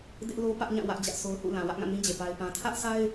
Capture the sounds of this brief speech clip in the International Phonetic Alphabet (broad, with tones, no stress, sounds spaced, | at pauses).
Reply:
d ɪ˦ ʔ l o˦ p ä˦ ʔ ɲ ã˦˨ w ä˦ ʔ d͡ʑ ä˦ ʔ sʰ o˦ ʊ̯ h ṵ˦˨ l ã˨ w ä˦ ʔ ŋ ã˦˨ n ĩ˦ d͡ʑ e˨ p a˦ ɪ̯ p ã˦ tʰ ä˦ ʔ s a˦ ɪ̯